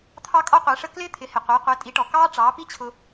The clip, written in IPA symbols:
t̪ʰɑ˥kʼɔ˥qʷɛ˩˥ʂə˥ klɪː˥t̪ʰɪ˩˥hɪ˩qʷɪː˩˥ qʷɛ˩˥tʼi˩˥ʈɔ˩ kɑː˥ʈ͡ʂɑː˩˥pi˥t͡ɕʰʊ˧

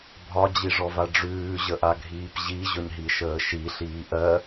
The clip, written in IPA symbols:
bʱɒd͡ʑiʐɔva ɖ͡ʐʉːʑəʔaɡʱiːp ʑiʑɵɲɦiʃəː ʃiɬiː ʔɜ

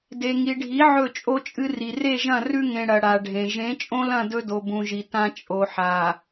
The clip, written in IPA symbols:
de˨ŋi˨ɖʱi˨˦ ʕɵ˦˨t͡ʃʼo˦t͡ʃʼɨ˦ri˨ re˦˨ʒɐ̃˦˨ rʉ˦ŋẽ˨ ɽɐ˨ɽa˨ɖʱẽ˨ ʒẽ˨˦t͡ʃʼõ˦lɐ̃˦˨ dɵ˦do˨bũ˨ʒi˨ tã˦t͡ʃʼo˨ħa˨

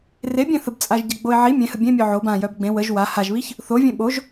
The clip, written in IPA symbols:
rebʲẽ θəbt͡sʼaʒ ɟəɡ͡boɪ̯ ʕi mʲẽhə bʲẽmʲœ ʕob ãjœb ɡ͡bẽ wəʒ wa haʒβiç | θovʲẽ ɓoʒ

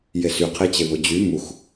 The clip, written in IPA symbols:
jesy qʰet͡ɕeβod͡ʑy mux

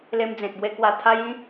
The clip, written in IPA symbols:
le˧md͡zẽ˨t̚bwe˧ kwa˨˩t̪ʰa˧jĩ˧

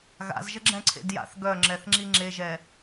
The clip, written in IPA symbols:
ɣa̰zʒə ɡ͡ǁɛ̃ǀʰḛd ja̰θ ɡœŋ͡ǁɛθŋ͡ǁi ŋ͡ǁeʒɛ

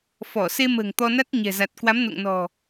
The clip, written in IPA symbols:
fɔ˧˩se˧mə̤ː˨˩ŋ t̪ɔ˧na˦˥t̚ ɲɛ̤˨˩za˨˩t̚kwa˨˦m no̰˧˨ŋnɔ̤˨˩

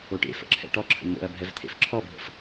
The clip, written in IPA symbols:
oʈḛfə̰ ǁʰɛ̰ʈɔǁʰə̰ n̪o̰ɐ̯ bʱɛvt̪ʰḛfǁʰɔbʱə̰f

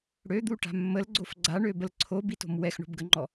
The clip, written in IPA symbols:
ɽød̪uʈa̤ mːəlɡ͡ǀof ɡ͡ǀaɳøbəl ǀʰobito̤m wɛxɳo̤bɡəŋ͡ǃɔ

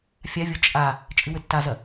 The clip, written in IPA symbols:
fʲavʲo t͡ʃʼa | t͡ʃʼɨwɘtːazɐ

